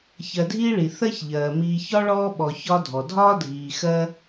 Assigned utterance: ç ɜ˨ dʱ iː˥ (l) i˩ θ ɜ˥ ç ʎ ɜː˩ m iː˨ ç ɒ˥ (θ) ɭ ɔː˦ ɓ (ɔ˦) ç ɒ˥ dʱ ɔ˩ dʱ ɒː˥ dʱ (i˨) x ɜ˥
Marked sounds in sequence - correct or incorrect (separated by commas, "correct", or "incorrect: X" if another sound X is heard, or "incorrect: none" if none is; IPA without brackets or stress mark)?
incorrect: ɭ, incorrect: none, incorrect: ɔ˨, incorrect: iː˨